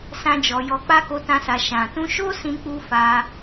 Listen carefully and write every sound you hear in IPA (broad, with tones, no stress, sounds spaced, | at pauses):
s ã˦ d͡ʒ ɔ˧ j ɔ˧ k͡p a˦ k o˦ t ã˦ s a˧ ʃ ã˨ t ũ˧ ʃ o˦ s ĩ˦ k͡p u˦ f a˧